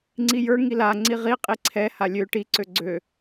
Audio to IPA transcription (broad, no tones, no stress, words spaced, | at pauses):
ŋ͡ǀijə˞ ŋila ŋ͡ǀiʁi qʼiǀʰɛ halʲø ʈi ǀøɡ͡ǀø